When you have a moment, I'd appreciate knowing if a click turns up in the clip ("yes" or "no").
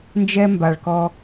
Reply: no